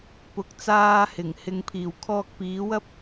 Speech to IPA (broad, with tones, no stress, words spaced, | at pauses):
pʊ˨˥k̚t͡saː˧hɪ˨˩ŋhɪ˨ŋ pʰiː˨˩wkʰɔː˧k̚piː˨˥wɐ˥p̚